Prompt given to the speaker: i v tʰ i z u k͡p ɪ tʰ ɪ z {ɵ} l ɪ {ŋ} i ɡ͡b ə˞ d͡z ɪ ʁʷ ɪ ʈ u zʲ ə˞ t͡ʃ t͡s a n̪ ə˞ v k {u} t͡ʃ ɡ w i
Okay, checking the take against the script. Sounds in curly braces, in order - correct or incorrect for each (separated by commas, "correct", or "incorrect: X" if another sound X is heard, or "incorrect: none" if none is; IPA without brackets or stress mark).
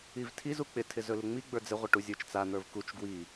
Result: correct, incorrect: ŋ͡m, correct